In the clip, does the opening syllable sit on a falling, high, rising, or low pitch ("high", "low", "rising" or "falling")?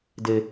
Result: low